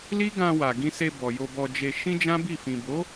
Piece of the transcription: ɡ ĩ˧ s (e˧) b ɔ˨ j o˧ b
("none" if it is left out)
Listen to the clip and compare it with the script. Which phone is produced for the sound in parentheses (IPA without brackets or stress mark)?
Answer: e˧